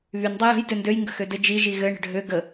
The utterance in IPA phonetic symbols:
β y n dˤ ɘ j ə̤ j d ø n d ø j ŋ ɡ ə̤ x ø d ɘ d͡ʒ i ʒ i ɣ ɘ ɳ ə̤ ɖʱ ø ɡ ə

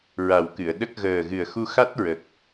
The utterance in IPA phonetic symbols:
ɹ a˨˩ w k ɨ˨˩˨ ə̯ ɗ ə˦˥ k̚ ɣ əː˨˩ ɣ ɨ˨˩ ə̯ x u˧ x a˦˥ t̚ ɹ ə˨˩ k̚

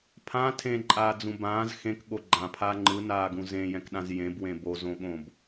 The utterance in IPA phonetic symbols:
pʰ ã tʰ ẽ ǃʼ aː d͡z ũ b ãː z x ẽ k ɠ o ɡ͡ǃ ã pʰ a ŋ͡ǃ ɯ n aː ɡ ũ z ẽ j ɛ̃ k ɗ ã z j ẽ b w ẽ b o z õ ɠ õ b

